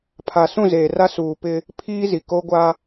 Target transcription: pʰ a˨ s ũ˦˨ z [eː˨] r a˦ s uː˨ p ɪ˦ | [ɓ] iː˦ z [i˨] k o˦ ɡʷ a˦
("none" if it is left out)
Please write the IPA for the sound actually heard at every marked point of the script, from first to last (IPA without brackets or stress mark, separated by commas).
eː˨, pʰ, i˨